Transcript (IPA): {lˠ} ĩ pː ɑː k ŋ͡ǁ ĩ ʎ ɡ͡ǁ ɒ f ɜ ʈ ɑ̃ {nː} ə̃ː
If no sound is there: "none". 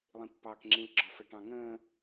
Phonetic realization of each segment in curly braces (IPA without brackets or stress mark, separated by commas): lˠ, ŋ